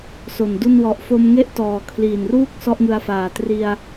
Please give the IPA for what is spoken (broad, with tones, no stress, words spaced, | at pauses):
so˨˩ndu˥˩n wɔ˨˩ʔfo˧mŋe˥˩ʔ tɔː˨˩kʰliː˨˩nruː˥˩k̚ sɔ˥˩ʔŋɯ˧a̯faː˨˩ tri˧a̯